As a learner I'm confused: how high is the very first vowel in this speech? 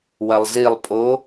low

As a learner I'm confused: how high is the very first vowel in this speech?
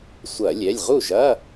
low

